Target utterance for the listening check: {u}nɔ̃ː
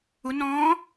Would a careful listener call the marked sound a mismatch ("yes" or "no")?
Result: no